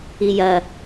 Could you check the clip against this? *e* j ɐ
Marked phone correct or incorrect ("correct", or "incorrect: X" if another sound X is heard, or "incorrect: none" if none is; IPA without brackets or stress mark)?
incorrect: i